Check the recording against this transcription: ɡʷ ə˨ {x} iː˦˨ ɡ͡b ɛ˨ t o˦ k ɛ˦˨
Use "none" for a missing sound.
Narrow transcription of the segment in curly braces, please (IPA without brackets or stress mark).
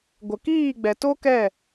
k